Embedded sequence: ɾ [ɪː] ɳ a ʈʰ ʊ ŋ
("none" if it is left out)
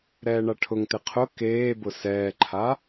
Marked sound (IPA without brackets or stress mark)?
ɛː